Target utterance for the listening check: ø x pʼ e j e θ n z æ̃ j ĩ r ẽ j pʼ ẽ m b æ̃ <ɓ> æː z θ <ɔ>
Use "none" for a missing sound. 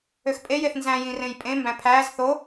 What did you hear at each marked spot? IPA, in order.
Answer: pʰ, o

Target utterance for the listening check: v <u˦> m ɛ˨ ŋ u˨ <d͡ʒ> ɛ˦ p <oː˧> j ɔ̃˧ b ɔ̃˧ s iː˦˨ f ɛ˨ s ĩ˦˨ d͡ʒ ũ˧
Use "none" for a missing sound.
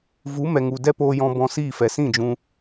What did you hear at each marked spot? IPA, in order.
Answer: u˨˦, d, oː˧

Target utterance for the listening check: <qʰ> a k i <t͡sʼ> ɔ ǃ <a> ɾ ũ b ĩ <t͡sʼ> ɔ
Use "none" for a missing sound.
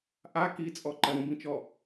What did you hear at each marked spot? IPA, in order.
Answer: ʔ, t͡sʼ, ɐ, t͡ʃ

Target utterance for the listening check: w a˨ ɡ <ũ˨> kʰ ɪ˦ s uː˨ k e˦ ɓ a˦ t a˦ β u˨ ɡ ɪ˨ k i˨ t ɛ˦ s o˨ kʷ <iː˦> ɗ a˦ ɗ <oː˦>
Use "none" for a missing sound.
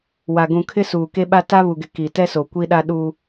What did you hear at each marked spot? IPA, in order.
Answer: ũ˨, i˦, uː˦

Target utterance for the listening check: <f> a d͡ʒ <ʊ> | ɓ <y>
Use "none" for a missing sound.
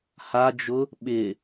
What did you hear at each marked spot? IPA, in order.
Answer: h, ʊ, ɪ

